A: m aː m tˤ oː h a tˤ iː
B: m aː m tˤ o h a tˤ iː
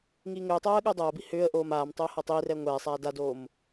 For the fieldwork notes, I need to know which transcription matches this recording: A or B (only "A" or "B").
A